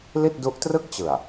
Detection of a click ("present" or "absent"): absent